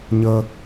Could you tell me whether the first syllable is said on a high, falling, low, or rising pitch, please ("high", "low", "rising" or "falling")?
high